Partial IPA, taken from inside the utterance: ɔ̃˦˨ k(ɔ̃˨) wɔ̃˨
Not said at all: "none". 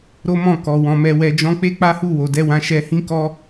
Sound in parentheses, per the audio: ɔ˨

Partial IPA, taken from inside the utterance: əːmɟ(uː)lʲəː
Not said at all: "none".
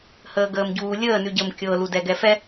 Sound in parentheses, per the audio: uː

